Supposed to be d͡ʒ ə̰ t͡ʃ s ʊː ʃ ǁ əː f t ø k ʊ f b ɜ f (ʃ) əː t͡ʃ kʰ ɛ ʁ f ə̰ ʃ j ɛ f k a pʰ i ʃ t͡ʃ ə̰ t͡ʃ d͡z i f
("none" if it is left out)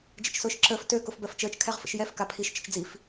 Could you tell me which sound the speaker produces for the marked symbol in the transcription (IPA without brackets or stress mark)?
t͡ʃ